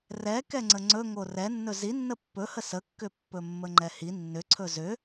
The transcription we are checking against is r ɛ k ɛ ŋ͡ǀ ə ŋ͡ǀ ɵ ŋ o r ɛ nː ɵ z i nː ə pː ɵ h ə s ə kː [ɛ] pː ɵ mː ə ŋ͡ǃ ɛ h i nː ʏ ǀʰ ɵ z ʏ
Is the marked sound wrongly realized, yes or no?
yes